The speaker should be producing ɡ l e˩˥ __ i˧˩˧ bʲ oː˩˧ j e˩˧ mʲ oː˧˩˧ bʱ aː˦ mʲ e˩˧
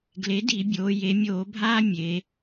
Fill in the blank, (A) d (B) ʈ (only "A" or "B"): A